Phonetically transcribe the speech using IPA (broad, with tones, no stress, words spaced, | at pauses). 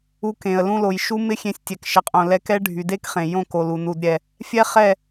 u˧kẽ˨ə̯ lũ˧lo˨j ʃu˦mɪ˦ xʲẽ˧sʲtʲɛ˨k ʃɪ˨qʼõ˨lɛ˧kɛ˦ ɖʱy˨de˦kχẽ˨ jõ˦˨ko˨lu˨ nu˨dɾʲɛ˨ | fʲɛ˦χɛ˦˨